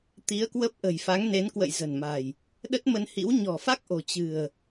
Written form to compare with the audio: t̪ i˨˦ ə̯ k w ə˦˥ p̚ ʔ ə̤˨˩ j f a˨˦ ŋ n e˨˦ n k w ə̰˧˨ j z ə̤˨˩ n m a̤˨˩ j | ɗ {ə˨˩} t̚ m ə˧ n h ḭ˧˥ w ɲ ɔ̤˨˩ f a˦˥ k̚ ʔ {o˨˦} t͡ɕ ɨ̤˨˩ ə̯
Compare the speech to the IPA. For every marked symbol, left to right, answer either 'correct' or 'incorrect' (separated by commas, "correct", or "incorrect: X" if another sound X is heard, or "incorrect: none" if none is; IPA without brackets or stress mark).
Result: incorrect: ə˦˥, incorrect: o̤˨˩